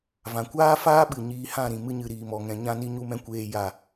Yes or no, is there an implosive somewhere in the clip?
yes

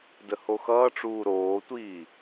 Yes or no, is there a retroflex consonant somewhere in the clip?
yes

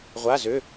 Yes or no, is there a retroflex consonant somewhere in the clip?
no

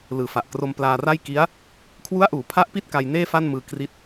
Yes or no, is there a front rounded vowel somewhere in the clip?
no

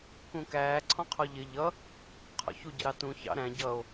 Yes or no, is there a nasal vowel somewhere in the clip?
yes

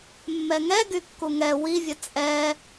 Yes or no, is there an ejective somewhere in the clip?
yes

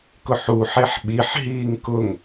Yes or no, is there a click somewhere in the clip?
no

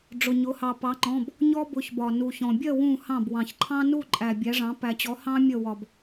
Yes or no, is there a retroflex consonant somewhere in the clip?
yes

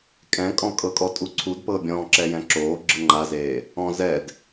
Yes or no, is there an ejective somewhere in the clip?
yes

